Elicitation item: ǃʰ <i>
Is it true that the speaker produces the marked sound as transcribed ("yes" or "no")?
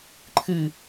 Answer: no